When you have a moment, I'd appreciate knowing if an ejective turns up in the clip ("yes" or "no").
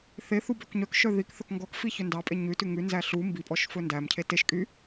yes